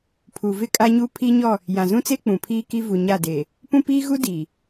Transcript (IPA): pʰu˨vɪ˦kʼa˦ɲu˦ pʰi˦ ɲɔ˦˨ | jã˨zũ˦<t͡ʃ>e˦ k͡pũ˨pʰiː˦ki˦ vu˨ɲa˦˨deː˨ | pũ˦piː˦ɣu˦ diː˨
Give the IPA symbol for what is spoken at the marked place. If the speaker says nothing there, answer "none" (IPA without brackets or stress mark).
t͡s